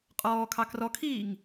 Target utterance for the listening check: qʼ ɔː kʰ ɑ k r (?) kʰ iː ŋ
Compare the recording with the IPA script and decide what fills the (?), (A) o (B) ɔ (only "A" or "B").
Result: B